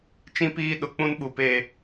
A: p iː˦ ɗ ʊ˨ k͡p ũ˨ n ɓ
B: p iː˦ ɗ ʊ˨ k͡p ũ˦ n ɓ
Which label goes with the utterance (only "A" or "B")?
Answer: B